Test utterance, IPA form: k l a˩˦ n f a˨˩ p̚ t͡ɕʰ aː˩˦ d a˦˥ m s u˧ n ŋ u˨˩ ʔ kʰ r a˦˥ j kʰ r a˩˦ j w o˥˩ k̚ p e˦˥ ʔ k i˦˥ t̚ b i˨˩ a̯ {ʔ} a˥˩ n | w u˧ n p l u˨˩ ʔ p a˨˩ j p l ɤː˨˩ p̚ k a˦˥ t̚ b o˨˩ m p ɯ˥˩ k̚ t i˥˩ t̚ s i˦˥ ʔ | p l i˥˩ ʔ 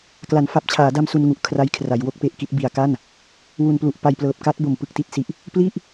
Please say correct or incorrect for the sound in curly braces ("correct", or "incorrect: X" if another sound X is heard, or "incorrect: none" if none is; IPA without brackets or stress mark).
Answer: incorrect: k